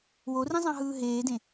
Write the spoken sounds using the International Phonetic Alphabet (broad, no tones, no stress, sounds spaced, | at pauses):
w o r ĩ zˤ ɑ̃ ɦ ɯː ɦ eː d ẽ